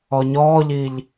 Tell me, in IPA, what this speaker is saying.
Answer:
ɔ ɲ ɔː ʎ i ʎ

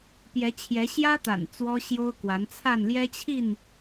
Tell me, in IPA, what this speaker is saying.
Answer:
p j ɛ˨˦ t͡ɕʰ j ɛ˨˦ ɕ j ä˦ t̪ a̰˨˩ n t͡s w ɔ˦ ɕ j o˦ ʊ̯ k w a˨˦ n t͡sʰ a˥˨ n l j ɛ˦ t͡ɕʰ i˥˨ n

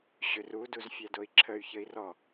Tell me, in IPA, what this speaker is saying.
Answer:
ɕ ʏ r u d u z fʲ æ d o i̯ ǁʰ ə y̯ ç ə i̯ r ɔ

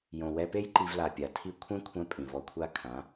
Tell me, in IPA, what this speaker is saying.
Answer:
j õ˨ w ɛ˧ p e˦ j ǃ i˧ v l a˨ pʲ a˨ tʰ i˦ kʷʰ ɛ̃˦ kʷʰ ɛ̃˧ pʼ ĩ˨ v ɔ˧ kʷʰ a˦ kʰ ã˨˦

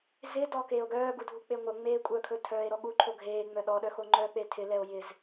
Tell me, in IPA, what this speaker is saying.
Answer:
z ɪ d ɔ k eː o̯ ɡ œː ɡ u dʱ u k͡p e ŋʷ œ ŋ͡m eː kʷʼ œ kʰ ɵ tʰ œː e̯ ɾ ɔ ɠ u ǃʰ o ɡʱ eː ŋ͡m œ ɗ ɔ ɗ œ x o ŋ͡ǃ œ k͡p e tʰ ɪ l ɛ o̯ j ɪ z

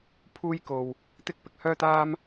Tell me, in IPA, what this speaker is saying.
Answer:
pʰ uː˥ j k o˧ w | t̪ ɪ˥ k̚ p ɪ˨ k̚ h œː˥ t̪ aː˥ m

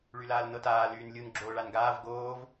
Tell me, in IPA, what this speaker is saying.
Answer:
ɭ y l aː l n ɤ t aː l yː n lʲ u n ɡ͡ǁ oː ɭ a n ɡ aː v ɡ oː v

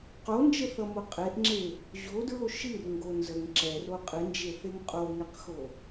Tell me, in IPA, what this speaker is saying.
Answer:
q o n d͡ʒ ə θ ʌ m o qʼ e ʔ ŋ͡ǁ e | ʑ o d ɹ o ʃ ɨ r ŋ ɡ o n z ə ŋ ǁ ɛ r o qʼ ɨ n d͡ʒ e θ e ŋ qʼ o ŋ ɛ q x o

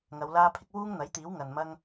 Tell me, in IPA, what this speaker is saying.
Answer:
ŋ ɐ˨˧ w l aː˥ pʰ ɪ˥ k̚ w uː˥ ŋ n̪ ɐ˨˥ j t̪ iː˨˥ w ŋ ɐ˨ n m ɐ˥ ŋ

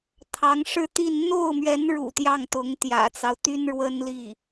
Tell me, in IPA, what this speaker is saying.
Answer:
t̪ʰ ɑ˧˥ ŋ ʂ ɻ̩˥˧ t̪ i˥˧ n n̪ o˥˩ ʊ̯ m ɥ ɛ˧˥ n ɻ ṵ˨˩ t̪ j ɑ˥˩ ŋ t̪ ʊ˧˥ ŋ t̪ j ä̰˨˩ t͡s ɑ˦ ʊ̯ t̪ y˥ n ɻ w ə˥ n l i˥˩

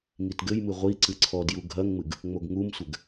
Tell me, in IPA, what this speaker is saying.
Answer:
ŋ i t ɡ ɘ j m ɨ ʁʷ i ǀ ɨ ǀʰ ɔ d j u ɡʱ ɐ ŋ ŋ͡m ɨ ɡ | ŋ͡m o ɡ ŋ u m sʷ ɘ ɡ

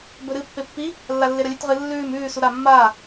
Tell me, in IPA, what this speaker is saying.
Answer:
b ɵ ɾ ɨ pː e pː i | lː a lː e ɾ ɐ lʲ ʉ t ʁ ɨ lː ʉː m ʉː s u ɾ a mː aː

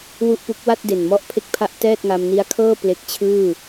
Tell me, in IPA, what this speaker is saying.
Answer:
w u˥˩ ʔ p u˦˥ k̚ w a˥˩ t̚ d e˨˩ n m ɔ˦˥ ʔ pʰ e˥˩ k̚ pʰ a˥˩ ʔ t ɛː˥˩ t̚ ŋ a˧ m n i˦˥ a̯ kʰ ɤː˥˩ p l e˦˥ k̚ t͡ɕʰ ɯː˥˩

